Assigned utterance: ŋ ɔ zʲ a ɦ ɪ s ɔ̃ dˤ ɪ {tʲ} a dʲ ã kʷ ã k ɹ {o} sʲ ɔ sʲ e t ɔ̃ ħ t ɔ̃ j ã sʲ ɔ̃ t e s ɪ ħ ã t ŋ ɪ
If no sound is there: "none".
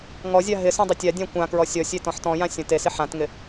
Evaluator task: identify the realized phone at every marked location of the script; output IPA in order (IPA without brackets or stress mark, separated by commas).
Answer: tʲ, ɔ